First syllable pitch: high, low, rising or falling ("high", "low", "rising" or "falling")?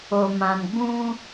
low